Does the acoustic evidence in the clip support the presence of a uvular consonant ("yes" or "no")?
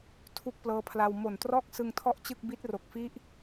no